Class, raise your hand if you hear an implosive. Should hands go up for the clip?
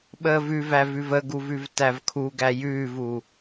yes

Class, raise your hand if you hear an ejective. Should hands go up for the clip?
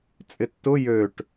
yes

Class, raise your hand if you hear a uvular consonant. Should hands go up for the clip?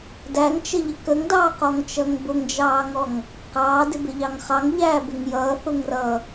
yes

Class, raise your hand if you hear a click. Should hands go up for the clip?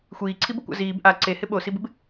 yes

